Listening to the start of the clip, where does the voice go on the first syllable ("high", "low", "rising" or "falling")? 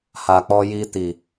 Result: low